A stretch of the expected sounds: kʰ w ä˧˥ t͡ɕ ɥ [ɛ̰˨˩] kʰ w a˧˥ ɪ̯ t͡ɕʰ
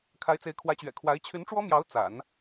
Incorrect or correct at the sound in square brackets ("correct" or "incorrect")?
correct